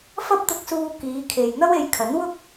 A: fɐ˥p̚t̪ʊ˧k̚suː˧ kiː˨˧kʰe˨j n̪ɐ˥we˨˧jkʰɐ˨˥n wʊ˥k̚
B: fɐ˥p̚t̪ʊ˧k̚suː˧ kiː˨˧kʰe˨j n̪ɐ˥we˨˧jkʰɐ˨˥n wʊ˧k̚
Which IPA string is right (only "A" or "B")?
A